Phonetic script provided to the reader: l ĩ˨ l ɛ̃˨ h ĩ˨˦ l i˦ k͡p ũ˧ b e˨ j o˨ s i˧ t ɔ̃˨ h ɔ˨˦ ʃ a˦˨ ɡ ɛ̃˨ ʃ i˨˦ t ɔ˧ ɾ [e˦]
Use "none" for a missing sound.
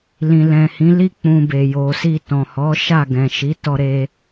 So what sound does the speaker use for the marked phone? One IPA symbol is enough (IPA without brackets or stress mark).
e˧